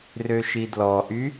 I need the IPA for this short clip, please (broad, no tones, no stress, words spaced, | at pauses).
røʃidlɔʔy